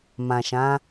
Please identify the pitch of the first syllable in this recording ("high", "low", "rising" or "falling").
low